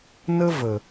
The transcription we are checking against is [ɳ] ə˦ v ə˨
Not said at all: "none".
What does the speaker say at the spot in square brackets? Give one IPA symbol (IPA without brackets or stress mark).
n